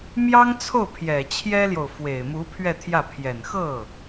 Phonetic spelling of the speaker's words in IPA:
m j ɑ˥ ŋ t͡sʰ o˥˩ ʊ̯ pʰ j ɛ˨˩ t͡ɕʰ j ɛ˥ l j o˨ ʊ̯ f w e˨˩ ɪ̯ m u˧˥ pʰ ɥ ɛ˥˧ t̪ʰ j ä˥˩ pʰ j ɛ˨˩ n x ɤ˥˩

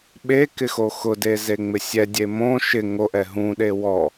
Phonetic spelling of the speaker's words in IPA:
ɓ e k ɪ x o x ʊ d e z e ŋ͡m ɪ sʲ ɛ dʲ e m õ ʃ ɪ ŋ o ʔ ɛ ɦ ũ ɗ e w ɔ

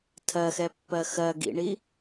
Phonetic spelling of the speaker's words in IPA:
tʰ ɜ x ɛ pː ɜ x ɜ ɡ ḭ ɳ i

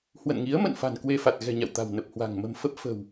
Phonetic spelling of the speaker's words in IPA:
h w ə̰˧˨ n ŋ i˨˦ ə̯ m ə̰˧˨ n f a̤˨˩ n k w e˧ f a˨˩ t̚ ɣ ɛ̤˨˩ ɲ a̰˧˨ w t̪ a̤˨˩ w n ə˨˩ p̚ h w a̤˨˩ ŋ m ə̤˨˩ m f ə˦˥ p̚ f ə̤˨˩ w

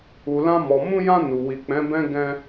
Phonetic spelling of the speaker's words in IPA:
u˨ l ã˧ m ɔ˨ m ũ˧ j ã˧ n u˨ w i˨ k͡p ɛ̃˨˦ b ɛ̃˦ ɡ ɛ̃˧

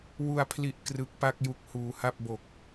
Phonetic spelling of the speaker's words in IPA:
w u˨˩ a̯ pʰ l i˨˩ ʔ k r ɯ˨˩ k̚ p a˥˩ k̚ j u˨˩ k̚ h uː˩˦ h a˥˩ p̚ b o˨˩ k̚

